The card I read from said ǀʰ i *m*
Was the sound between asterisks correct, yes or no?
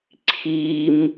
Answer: yes